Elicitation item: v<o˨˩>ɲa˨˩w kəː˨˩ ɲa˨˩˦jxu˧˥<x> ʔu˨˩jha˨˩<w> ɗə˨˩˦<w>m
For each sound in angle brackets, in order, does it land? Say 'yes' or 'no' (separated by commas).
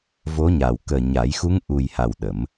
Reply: no, no, yes, no